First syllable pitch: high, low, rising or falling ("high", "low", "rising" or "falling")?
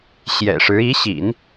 low